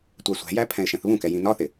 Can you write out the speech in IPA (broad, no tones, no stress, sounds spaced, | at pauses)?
tʷ æ sʷ æ̤ j æ pʰ ɛ̃ ɪ̯ ʃ ɛ̃ θ β ũ k ɛ j ĩ n ɒ θ ɪ